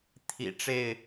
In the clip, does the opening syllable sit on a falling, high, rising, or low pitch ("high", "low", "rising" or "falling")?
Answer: low